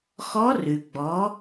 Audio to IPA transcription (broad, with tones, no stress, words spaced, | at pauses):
xɔ˧˥rʉ˩ ɡ͡bɔ˩˧